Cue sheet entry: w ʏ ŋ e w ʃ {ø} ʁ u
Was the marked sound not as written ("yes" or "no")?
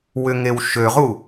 no